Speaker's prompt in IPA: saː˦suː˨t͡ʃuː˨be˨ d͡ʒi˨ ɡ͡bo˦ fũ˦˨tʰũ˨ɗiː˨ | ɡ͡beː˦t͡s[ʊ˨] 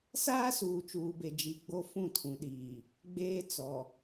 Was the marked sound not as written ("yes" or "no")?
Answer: yes